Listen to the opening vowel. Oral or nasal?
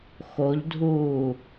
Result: oral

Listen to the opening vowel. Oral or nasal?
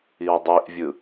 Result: oral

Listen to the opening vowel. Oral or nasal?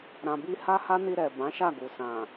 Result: nasal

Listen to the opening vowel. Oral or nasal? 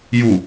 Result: oral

